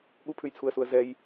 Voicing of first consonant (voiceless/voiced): voiced